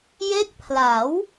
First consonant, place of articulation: palatal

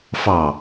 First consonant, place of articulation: labial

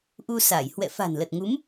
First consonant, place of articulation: glottal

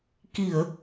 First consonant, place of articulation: velar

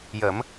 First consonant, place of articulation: palatal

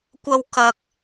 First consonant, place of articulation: velar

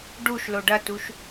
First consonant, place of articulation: retroflex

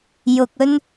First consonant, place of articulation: palatal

